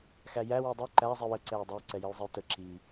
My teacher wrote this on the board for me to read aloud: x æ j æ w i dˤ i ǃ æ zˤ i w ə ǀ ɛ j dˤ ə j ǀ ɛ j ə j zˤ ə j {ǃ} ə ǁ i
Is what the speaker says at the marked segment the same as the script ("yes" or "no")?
no